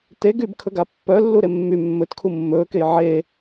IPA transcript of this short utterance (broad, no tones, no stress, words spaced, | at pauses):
te ɡybkʰɵɡa pːœlːu ɾemːy mːɵtkʰu mːɵːkej ʕe